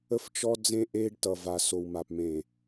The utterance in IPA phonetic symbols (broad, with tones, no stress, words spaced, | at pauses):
ə˦ft͡ʃɔ˦d͡zẽ˦ ʔeː˦ɖtʌ˨va˨ so˨wma˨p mẽ˨